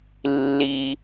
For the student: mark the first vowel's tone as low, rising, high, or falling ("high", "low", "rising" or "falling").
low